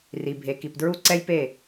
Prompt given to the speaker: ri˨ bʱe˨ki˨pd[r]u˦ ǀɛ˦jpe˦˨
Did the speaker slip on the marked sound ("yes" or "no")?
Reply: yes